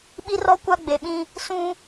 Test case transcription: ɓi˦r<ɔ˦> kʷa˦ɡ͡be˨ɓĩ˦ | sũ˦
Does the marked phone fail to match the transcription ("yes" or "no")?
no